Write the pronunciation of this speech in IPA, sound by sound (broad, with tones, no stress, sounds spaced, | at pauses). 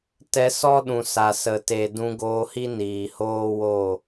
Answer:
t ɛ˧ s ɔ˦ ɗ ũ˨ s a˨ s ə˨ t e˨ d ũ˧ ɡ oː˧ h i˦ n iː˨ h oː˦ w o˦˨